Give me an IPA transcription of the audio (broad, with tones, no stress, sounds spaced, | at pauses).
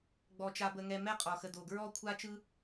ɡ͡b ɔ˨ t͡ʃ a˨ b ə˨ ŋ ɛ˨ m ɛ˥ qʼ ɔ˩ x ə˨ d o˩ ɡ ɹ ɔ˦ kʷʰ a˥ t͡ʃ ɯ˥